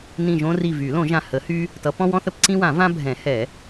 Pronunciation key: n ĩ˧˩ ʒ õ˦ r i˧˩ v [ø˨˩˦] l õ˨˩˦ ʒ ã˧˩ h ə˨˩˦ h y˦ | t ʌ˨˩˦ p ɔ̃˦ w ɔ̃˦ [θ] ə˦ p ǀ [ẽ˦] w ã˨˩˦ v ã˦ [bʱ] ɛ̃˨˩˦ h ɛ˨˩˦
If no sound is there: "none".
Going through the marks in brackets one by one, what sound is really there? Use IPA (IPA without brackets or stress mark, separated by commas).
y˨˩˦, θ, ĩ˦, bʱ